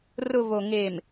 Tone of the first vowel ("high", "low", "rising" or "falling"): low